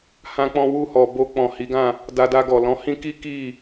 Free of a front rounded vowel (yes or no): yes